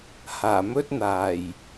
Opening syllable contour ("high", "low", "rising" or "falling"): low